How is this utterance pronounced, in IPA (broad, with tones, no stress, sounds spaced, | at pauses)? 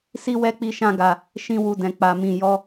s i˦ w ɛ˦ k͡p i˦ ʃ ã˦ ɡ a˧ | ʃ ĩ˦ w u˦˨ d ɛ̃˧ k͡p a˧ m ĩ˧ j ɔ˦